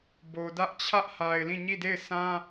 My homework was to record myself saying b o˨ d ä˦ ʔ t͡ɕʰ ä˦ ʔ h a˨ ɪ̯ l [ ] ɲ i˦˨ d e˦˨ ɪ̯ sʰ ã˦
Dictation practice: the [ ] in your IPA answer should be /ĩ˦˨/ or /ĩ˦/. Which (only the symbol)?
ĩ˦˨